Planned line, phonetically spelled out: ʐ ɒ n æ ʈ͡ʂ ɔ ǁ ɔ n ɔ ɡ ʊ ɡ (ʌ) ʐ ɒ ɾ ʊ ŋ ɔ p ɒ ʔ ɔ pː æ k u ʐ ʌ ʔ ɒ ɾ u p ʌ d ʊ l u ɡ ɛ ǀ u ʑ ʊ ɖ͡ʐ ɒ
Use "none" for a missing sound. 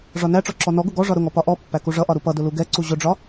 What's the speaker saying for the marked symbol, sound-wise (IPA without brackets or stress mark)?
ɔ